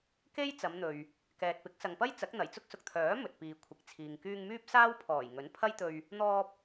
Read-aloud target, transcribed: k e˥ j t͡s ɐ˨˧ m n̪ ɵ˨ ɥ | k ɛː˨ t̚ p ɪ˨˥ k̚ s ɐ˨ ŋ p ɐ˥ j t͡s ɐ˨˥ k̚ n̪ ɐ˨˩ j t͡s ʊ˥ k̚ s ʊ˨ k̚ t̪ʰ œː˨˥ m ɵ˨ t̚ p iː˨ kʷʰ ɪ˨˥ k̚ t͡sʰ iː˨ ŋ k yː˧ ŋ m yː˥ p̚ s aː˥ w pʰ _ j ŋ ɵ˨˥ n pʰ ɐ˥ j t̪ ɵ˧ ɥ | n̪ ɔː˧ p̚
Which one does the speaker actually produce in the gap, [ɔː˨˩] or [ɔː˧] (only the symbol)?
ɔː˨˩